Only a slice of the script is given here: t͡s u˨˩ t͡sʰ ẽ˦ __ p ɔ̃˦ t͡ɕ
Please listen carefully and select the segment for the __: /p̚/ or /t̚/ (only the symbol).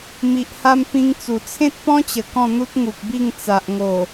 t̚